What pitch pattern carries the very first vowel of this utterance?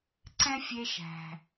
high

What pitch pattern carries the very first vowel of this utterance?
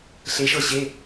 rising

